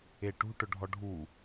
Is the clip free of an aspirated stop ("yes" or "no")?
yes